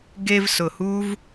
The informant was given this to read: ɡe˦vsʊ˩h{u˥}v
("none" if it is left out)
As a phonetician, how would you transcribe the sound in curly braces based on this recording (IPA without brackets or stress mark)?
u˥